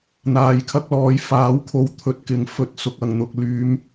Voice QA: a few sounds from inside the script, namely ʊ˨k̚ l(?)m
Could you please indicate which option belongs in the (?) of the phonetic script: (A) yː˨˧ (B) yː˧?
A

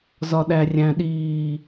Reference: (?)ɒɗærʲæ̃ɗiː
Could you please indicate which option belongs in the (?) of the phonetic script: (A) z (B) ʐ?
A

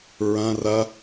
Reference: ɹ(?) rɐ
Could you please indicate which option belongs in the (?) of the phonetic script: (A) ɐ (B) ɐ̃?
B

